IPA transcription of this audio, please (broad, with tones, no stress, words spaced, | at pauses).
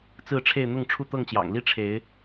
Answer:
t͡sɹ̩˥˨ʈ͡ʂʰe˥˨ɪ̯ n̪ʊ˥˨ŋʈ͡ʂʰu˥˨t̪ɤ˥˨ŋt͡ɕjɑ̰˨˩ŋ li˥˨ʈ͡ʂʰe˨˦ɪ̯